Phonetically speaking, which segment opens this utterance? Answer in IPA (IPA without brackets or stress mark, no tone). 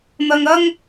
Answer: n̪